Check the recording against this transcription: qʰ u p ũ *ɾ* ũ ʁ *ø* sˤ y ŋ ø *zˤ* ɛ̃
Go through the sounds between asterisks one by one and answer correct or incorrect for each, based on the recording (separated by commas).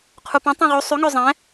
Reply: incorrect, incorrect, correct